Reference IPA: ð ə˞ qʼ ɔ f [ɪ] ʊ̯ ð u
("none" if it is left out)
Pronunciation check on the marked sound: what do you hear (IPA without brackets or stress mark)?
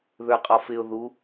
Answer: ɪ